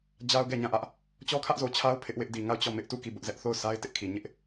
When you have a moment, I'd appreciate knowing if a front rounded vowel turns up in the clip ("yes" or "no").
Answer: no